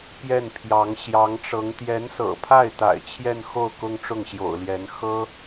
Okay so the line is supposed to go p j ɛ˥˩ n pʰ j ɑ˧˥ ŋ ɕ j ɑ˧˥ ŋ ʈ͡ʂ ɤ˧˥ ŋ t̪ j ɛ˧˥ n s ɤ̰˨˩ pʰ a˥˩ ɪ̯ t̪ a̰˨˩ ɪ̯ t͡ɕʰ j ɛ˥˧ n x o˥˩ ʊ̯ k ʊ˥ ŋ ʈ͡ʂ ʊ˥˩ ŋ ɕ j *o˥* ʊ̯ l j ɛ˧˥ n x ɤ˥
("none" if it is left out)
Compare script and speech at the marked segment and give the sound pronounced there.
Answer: o̰˨˩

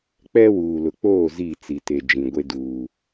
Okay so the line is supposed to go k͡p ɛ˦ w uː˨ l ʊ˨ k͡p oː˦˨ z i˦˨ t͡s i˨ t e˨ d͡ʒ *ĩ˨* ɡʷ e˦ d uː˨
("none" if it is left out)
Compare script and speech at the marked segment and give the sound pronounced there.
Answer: ĩ˨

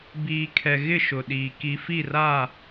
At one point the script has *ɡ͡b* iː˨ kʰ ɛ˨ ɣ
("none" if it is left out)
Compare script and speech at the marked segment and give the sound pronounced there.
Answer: b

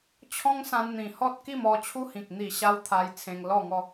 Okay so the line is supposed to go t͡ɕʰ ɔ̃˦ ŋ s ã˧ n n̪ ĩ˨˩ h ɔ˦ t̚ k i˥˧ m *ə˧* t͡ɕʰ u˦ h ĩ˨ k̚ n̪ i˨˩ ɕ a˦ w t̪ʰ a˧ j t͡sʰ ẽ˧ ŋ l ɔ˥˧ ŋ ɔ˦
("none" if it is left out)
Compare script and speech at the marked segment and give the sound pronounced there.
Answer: ɔ˧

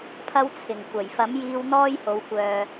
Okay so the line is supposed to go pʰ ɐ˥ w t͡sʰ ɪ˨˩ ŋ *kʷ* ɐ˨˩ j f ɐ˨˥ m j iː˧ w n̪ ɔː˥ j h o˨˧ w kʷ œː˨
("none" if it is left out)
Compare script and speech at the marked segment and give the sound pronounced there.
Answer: kʷ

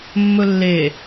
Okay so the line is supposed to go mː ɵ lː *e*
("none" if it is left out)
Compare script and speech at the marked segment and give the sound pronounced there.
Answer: e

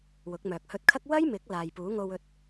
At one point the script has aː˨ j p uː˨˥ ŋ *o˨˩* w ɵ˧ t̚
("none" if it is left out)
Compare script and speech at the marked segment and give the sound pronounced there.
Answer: o˧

